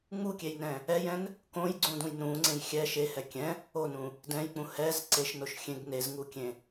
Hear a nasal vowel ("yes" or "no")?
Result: yes